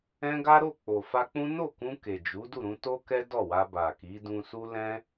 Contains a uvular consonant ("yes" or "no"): no